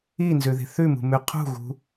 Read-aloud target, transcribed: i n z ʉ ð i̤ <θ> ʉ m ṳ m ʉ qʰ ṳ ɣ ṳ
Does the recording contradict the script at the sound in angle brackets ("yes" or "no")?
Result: no